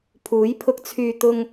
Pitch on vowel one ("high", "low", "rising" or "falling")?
rising